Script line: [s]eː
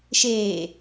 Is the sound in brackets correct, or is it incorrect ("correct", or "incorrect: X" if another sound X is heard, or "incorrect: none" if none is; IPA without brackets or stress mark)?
incorrect: ʃ